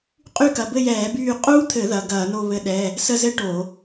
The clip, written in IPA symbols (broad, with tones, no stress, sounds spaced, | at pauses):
qʼ y˦˨ k ɐ˩˧˩ b ɘ˦˨ j ɛː˧˩˧ b yː˦˨ qʼ uː˦˥ t̪ʰ ɘ˧˩˧ ð ɐ˩˧˩ ɡ ɐː˧˩˧ n o˦˨ β ɘ˦˥ ɗ ɛ˧˥˧ | s ə˦˨ z ɘ˦˥ ʈ o˧˩˧